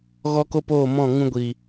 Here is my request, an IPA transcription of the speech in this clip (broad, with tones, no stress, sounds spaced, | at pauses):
ɣ ɔ˧ k o˧ p oː˦˨ m ɔ̃˦˨ ŋ ũ˧ ɡʷ i˨